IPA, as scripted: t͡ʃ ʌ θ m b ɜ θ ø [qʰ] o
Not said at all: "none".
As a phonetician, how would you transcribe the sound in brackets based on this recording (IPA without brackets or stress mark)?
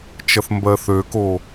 k